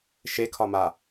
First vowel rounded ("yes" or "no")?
no